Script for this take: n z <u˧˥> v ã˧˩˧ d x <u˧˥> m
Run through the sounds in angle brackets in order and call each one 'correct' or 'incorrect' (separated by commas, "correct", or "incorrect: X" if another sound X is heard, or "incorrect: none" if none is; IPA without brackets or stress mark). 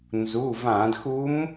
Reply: incorrect: u˩˧˩, correct